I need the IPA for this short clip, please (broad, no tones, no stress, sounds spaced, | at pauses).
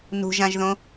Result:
n ṳ ʒ ã ʒ ð õ